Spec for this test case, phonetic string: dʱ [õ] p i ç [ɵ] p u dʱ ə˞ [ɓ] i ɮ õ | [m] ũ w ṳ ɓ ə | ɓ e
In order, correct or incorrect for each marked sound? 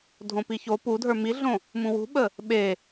correct, incorrect, incorrect, correct

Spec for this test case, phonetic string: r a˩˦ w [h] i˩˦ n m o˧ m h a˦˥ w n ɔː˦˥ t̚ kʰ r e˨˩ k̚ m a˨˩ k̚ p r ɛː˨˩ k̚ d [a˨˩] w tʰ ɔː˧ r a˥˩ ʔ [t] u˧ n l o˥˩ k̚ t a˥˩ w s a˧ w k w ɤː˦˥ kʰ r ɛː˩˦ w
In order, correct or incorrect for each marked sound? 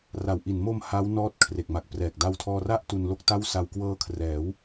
incorrect, incorrect, correct

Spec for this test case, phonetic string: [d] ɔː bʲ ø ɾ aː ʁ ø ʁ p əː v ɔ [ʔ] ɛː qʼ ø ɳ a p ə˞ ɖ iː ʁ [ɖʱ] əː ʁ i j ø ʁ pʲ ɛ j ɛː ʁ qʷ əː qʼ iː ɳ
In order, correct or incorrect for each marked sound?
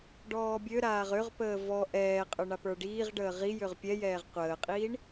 incorrect, correct, incorrect

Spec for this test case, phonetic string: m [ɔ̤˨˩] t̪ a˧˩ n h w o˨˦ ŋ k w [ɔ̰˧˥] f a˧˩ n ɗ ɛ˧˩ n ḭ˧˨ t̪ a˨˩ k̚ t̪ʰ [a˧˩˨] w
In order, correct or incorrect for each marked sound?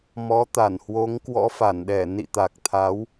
incorrect, correct, incorrect

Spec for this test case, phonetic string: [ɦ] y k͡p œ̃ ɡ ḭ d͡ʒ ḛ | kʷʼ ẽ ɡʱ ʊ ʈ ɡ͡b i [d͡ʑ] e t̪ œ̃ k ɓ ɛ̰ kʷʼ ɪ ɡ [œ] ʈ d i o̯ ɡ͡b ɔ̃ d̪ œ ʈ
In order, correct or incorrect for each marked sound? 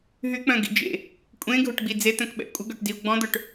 correct, incorrect, correct

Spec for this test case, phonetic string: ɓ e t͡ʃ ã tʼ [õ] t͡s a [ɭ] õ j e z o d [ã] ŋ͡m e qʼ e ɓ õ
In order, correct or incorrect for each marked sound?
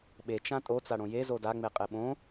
incorrect, incorrect, incorrect

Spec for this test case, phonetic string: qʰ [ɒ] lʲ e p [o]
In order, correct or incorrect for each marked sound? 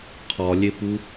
correct, incorrect

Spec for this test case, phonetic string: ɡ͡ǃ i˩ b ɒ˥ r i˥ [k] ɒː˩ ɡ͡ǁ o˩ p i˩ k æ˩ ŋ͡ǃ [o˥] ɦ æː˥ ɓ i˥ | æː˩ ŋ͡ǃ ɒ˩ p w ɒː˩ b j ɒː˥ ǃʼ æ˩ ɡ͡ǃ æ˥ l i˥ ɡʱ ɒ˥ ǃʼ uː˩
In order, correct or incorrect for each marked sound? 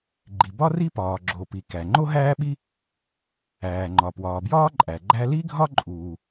incorrect, correct

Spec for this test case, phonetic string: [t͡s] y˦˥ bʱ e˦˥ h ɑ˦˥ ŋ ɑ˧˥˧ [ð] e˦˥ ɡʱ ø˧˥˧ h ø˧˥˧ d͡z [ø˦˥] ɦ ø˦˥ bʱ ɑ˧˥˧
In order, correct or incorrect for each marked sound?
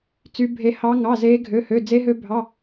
correct, incorrect, incorrect

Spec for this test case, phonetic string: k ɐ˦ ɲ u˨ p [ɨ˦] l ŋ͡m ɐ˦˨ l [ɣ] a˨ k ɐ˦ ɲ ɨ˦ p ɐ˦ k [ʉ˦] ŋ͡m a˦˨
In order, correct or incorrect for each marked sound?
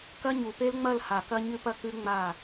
incorrect, incorrect, correct

